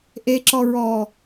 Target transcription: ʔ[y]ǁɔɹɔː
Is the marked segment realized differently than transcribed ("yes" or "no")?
yes